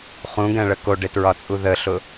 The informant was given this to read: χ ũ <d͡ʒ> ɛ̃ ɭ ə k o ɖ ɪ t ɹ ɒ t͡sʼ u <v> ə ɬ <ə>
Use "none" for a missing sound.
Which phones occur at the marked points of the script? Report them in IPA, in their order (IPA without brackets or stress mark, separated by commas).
ɡ, ð, ʊ